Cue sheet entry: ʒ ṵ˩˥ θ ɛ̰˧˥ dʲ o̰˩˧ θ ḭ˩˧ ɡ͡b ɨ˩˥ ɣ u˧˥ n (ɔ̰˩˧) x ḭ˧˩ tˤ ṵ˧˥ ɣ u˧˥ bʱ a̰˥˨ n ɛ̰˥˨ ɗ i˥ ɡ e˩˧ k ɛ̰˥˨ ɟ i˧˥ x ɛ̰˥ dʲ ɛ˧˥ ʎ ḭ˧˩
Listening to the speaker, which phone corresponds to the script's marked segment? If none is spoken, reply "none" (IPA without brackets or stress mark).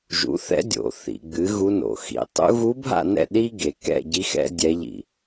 o̰˩˧